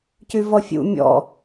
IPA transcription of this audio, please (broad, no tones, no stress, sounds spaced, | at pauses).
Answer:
c y v ɔ fʲ ṵ mʲ ɔ̰